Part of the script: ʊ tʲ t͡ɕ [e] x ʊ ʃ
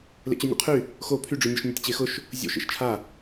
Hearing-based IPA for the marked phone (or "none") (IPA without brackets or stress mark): e